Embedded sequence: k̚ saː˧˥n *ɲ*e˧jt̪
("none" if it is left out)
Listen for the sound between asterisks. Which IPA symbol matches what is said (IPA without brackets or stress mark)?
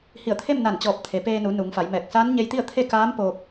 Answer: ɲ